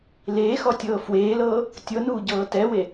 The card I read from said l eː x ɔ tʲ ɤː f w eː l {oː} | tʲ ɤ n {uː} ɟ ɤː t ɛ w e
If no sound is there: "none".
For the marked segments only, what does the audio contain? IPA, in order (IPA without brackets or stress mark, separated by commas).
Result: ɤː, uː